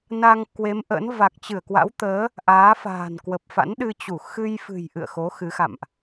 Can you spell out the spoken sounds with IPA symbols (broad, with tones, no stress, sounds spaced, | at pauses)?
n a˧ ŋ k w e˨˦ m ʔ ə̰˧˥ n v a˨˩ k̚ t͡ɕ ɨ˧˩ ə̯ k w a̰˧˥ w t̪ əː˨˦ | ʔ aː˨˦ f a̤ː˨˩ n k w ə˨˩ p̚ f a̰˧˥ n ɗ ɨ˧ t͡ɕ u˧˩ x ɨ˧ j f ɨ̤˨˩ j ʔ ɨ̰˧˨ ə̯ x o˨˦ x ɨ˨˦ x a̰˧˨ m ʔ